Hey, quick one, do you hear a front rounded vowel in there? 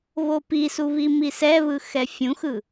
no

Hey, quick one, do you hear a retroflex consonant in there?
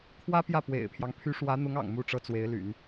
yes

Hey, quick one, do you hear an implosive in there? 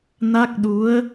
yes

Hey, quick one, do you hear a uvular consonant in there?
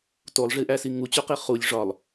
yes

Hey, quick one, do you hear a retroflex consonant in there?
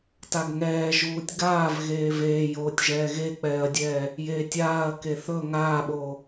no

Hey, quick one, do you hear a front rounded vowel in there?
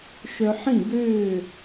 yes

